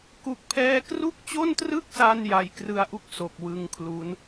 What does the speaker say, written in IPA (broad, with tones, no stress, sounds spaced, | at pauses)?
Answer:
k u˦˥ k̚ pʰ ɛː˥˩ k r u˥˩ k̚ t͡ɕ o˥˩ n t r ɯ˥˩ k̚ s a˧ n j a˧ j k r ɯ˦˥ a̯ ʔ u˥˩ k̚ s o˨˩ k̚ w ɯ˧ ŋ kʰ l u˦˥ n